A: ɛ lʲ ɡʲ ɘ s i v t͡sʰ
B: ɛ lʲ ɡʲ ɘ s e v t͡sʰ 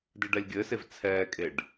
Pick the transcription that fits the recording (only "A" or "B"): B